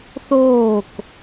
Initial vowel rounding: rounded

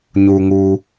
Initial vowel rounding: rounded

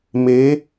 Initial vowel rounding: unrounded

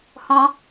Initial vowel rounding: rounded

